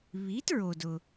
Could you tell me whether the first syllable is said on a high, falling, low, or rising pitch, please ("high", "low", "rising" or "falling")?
rising